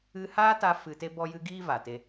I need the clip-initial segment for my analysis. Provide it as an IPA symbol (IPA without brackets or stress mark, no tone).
ɨ